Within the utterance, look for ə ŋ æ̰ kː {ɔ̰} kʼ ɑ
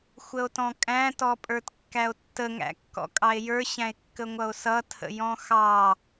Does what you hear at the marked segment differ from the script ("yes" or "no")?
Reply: no